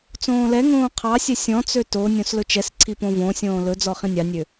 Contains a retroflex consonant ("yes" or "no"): no